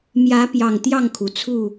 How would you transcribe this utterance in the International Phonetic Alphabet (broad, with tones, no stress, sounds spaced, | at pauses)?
m j ä˨˦ p j ɑ˨˩ ŋ t̪ j ɑ˥˨ ŋ kʰ u˩ t͡sʰ u˥˨